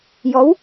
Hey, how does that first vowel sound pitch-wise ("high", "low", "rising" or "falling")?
rising